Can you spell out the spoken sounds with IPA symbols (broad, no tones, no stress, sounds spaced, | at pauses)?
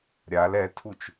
ɾʲ a l ɛ tʰ u t͡ʃ